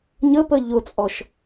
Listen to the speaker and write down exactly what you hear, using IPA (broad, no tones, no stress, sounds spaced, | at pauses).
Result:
ɲ ə p ə ʎ ʊ t͡sʼ ɔ ʃ